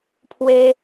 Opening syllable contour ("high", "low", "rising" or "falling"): high